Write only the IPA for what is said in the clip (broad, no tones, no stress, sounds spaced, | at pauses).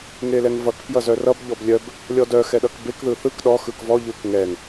ŋ e l ɛ ŋ v ʌ k p j ʌ z œ r ʌ b ʎ ɔ b lʲ œ b | lʲ ɔ d œ x ɛ ɗ ʌ k b e k ð ɯ θ ɯ k ɗ ɔ x ɯ k v ɔ ʎ ɯ k ŋ ɛ ŋ